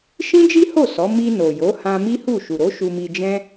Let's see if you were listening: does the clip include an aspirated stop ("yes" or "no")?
no